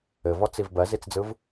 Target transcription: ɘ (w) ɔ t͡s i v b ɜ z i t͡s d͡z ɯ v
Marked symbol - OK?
no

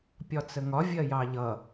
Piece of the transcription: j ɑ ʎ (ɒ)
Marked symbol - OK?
no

